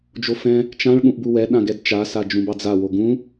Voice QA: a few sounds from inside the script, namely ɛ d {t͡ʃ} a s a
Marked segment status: correct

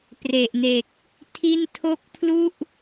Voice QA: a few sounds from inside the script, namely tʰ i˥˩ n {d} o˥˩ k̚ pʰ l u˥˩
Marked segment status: incorrect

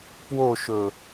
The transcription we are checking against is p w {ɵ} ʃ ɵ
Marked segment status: incorrect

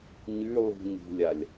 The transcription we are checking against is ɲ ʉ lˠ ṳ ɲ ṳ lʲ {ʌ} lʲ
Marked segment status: incorrect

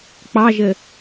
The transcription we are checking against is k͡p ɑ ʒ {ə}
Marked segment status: correct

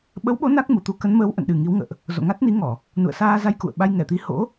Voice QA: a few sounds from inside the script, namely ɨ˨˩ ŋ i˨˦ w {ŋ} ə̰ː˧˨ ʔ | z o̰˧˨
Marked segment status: correct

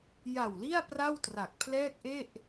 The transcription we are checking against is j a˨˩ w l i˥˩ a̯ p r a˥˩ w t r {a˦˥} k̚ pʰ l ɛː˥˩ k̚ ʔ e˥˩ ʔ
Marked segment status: incorrect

